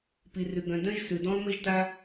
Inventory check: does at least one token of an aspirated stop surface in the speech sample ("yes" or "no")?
no